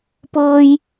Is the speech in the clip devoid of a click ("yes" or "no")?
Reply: yes